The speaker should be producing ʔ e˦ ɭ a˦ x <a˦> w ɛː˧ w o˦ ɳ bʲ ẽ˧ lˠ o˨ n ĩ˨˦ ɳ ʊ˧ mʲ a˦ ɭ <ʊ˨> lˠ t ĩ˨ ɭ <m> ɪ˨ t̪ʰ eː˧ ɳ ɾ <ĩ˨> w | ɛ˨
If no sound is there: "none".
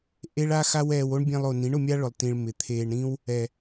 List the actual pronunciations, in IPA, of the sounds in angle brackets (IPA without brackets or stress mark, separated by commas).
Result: a˦, ʊ˨, m, ĩ˦